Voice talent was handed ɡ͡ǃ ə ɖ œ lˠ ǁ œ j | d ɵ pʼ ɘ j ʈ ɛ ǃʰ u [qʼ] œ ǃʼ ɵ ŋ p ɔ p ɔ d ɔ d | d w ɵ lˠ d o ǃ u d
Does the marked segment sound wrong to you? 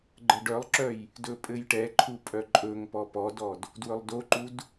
yes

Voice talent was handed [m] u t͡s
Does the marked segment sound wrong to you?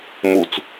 no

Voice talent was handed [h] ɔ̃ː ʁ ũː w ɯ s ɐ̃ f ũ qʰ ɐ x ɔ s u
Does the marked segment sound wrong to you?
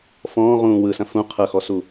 yes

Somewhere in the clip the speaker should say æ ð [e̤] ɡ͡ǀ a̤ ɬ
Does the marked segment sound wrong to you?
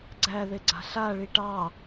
yes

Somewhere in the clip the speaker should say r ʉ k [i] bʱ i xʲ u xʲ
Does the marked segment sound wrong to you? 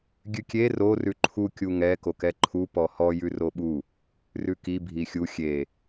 no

